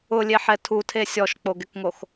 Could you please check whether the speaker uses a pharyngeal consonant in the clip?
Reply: yes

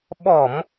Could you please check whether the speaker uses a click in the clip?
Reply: no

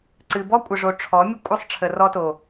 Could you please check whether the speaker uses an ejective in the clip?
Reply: yes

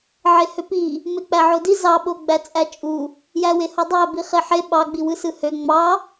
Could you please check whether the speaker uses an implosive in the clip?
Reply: yes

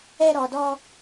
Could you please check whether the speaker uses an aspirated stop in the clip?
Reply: no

